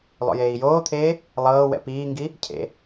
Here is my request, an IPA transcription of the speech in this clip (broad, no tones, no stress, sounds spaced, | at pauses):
lˠ o̰ j eː i̯ j oː t̪ʰ eː | lˠ ɤː w ɛ̰ p iː ŋ ɡ i | cʰ ḛ